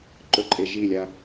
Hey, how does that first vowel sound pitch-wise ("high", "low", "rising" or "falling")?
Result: low